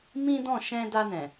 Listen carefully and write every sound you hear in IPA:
m ĩ˦ d ɔ̃˦˨ ʃ ɛ̃˧ d a˧ n ɛ̃˨

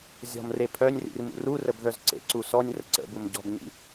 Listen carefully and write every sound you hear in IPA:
zʲ ɔ̤ m r e pʰ œ nʲ r ḭ r m ṵ r u r ə b ð œ z ǀ ḛ ǀ u s ɔ nʲ r ə̰ ǀ ə̰ b u m ɟ ɔ̤ b ɲ ḭ

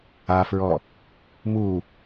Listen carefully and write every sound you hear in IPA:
a f ɹ ɔ | m u

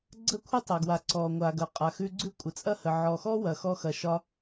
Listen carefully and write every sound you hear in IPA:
ɡ͡ǀ ə˥ kʷʰ ə˥ tˤ ɐ˩ ɡ w a˩ ǀ ɔ˩ ŋʷ a˩ ɡ ɐ˩ qʼ a˩ x ʉ˧ ɡ͡ǀ ʉ˥ kʷʼ ə˩ t͡sʼ ɐ˥ h ə˩ ʕ ɔ˩ x ɔ˥ w ɐ˩ x ɔ˧ x ɐ˩ ʃ ɒ˧

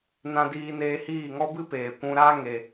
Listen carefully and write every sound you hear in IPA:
n ã˧ d iː˧ n eː˧ h iː˦˨ ŋ ɔ˦ b ɨ˦ p eː˨ kʷ ũ˧ ɾ aː˦ ŋ e˧

